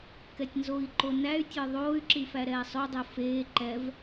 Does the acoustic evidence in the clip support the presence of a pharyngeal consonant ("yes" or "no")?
no